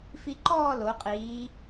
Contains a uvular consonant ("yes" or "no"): yes